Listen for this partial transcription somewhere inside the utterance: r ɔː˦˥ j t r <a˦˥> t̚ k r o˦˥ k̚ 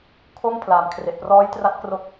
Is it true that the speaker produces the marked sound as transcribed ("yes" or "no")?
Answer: yes